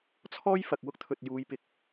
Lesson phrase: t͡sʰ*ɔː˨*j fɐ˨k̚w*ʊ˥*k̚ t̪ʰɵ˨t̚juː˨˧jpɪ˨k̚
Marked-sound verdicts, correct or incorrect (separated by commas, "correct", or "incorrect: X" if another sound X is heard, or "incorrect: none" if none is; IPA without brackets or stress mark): incorrect: ɔː˥, correct